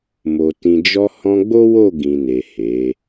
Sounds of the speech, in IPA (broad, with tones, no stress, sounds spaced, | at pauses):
m o˨ t ĩ˨ d͡ʒ ɔ˧ h ɔ̃˧ ɡ͡b o˦ w o˦˨ ɡ ĩ˨ n e˨ h e˨˦